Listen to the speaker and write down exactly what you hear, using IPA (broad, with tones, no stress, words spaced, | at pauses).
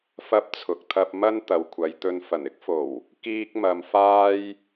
fɐ˧p̚ t͡sʰʊ˨k̚t̪ʰɐ˧p̚ mɐ˥n t̪ɐ˨wkʷʰɐ˨j t̪ɵ˨˧nfɐ˨˩nɪ˥k̚fo˨˩w | kiː˧k̚ mɐ˧mfaː˥j